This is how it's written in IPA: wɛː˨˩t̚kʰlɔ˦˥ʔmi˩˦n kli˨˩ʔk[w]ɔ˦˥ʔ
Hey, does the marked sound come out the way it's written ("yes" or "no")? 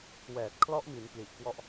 yes